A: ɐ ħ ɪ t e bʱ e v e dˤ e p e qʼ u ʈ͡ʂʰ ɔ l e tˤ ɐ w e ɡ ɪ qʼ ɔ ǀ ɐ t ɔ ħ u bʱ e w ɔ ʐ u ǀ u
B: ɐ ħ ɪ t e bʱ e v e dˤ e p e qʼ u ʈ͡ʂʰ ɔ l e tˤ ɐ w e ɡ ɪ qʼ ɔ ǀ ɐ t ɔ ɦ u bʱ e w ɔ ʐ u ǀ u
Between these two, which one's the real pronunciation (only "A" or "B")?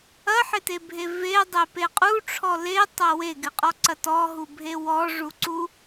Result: B